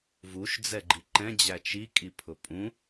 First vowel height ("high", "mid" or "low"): high